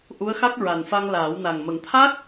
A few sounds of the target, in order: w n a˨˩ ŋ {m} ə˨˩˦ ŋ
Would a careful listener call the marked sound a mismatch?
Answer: no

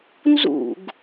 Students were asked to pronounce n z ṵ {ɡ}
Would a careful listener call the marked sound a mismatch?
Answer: no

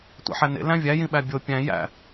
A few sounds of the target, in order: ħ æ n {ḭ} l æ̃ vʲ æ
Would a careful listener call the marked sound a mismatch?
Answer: yes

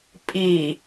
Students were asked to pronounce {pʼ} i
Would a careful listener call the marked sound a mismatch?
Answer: no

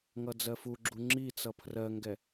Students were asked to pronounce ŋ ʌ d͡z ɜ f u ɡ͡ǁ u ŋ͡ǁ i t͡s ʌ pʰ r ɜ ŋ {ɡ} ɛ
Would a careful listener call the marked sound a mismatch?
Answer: no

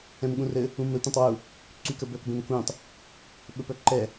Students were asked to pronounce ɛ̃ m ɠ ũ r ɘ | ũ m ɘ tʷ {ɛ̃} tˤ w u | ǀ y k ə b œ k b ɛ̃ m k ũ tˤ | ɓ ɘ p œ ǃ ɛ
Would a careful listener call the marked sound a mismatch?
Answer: no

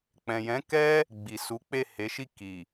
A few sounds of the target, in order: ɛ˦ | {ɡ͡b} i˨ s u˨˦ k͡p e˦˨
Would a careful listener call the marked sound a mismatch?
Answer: no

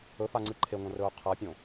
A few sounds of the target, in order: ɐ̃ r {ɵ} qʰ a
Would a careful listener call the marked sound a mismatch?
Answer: yes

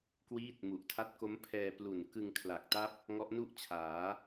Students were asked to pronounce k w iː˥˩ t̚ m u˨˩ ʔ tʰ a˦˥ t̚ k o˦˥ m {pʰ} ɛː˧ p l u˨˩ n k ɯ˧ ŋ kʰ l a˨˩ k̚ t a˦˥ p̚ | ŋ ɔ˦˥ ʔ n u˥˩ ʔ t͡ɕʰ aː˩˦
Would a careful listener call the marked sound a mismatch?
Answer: no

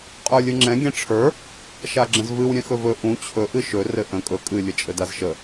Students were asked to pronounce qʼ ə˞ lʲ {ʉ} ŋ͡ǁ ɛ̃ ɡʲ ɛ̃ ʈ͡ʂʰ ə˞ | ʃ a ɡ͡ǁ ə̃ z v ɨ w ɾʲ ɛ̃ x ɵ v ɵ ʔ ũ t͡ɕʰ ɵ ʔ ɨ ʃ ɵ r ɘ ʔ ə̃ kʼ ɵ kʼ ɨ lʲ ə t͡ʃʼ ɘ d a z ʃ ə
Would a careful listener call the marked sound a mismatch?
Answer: yes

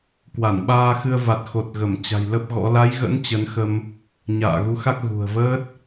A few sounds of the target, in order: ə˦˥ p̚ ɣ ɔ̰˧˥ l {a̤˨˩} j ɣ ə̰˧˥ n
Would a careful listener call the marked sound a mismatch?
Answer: yes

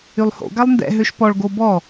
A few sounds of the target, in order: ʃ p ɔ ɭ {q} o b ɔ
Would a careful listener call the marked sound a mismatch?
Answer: yes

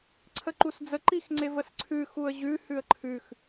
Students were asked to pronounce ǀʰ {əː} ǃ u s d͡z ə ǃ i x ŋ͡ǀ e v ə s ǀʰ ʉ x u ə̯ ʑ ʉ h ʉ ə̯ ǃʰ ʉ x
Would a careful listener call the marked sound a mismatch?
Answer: yes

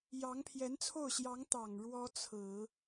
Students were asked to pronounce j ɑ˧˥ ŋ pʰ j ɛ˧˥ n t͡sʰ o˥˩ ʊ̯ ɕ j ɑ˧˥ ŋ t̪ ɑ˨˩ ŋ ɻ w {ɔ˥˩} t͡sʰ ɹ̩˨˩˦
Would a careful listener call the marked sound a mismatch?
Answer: yes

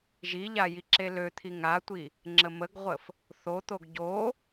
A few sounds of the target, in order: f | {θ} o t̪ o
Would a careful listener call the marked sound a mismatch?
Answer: no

